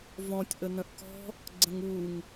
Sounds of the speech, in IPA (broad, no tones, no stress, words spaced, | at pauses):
vɔ̃tʲ ʔənə̃ʔkɔ̤ | ɡ͡ǀə̃ŋuŋ